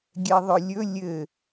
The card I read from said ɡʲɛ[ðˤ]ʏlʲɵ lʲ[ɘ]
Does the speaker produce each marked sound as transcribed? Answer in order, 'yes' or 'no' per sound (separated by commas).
yes, yes